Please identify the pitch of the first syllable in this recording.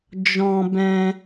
high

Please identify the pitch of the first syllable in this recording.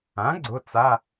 rising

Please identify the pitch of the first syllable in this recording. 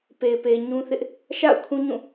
low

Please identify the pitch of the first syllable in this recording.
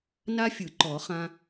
high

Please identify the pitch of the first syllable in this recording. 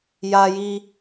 high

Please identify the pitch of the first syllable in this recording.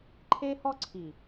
high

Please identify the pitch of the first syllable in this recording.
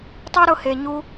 high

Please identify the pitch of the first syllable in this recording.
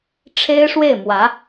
high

